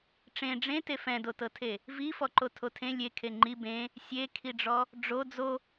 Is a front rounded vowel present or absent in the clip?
absent